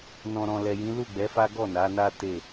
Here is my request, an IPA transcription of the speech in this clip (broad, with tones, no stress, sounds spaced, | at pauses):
n ɔ̃˨ ɾ ɔ̃˨ l ɛ˨ j ĩ˨˦ l u˦˨ ɡ͡b ɛ˨˦ f a˦ ɡ ɔ˦˨ n a˨˦ n a˦ t e˦˨